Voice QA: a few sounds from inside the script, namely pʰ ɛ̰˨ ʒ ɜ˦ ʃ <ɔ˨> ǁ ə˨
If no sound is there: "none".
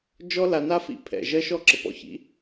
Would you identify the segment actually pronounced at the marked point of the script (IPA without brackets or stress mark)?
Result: ɔ˦˨